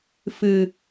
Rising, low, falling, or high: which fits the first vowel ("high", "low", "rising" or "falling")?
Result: high